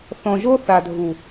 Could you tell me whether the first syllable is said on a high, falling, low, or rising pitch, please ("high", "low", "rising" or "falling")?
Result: low